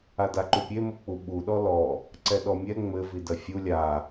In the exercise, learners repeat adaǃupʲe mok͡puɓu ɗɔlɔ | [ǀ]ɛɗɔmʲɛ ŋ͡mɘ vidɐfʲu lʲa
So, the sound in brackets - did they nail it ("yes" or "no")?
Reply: yes